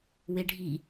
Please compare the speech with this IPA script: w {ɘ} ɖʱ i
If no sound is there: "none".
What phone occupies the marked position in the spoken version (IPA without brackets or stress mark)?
e